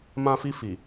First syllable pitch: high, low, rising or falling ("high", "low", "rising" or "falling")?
high